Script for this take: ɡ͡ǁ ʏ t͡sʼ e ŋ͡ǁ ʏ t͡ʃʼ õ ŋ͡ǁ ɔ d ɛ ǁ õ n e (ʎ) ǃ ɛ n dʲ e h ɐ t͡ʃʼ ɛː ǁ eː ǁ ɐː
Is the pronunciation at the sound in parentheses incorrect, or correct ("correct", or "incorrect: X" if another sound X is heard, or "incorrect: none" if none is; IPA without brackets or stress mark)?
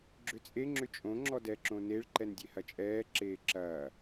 incorrect: ɭ